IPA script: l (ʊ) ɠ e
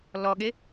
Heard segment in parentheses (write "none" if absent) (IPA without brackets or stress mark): ɔ